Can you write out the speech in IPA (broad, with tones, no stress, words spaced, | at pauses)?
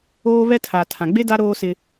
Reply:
oː˦βɛ˦ tʰa˨tʰã˨ɡ͡be˦ da˦ɾoː˦ sɪ˦